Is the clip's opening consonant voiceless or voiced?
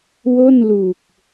voiced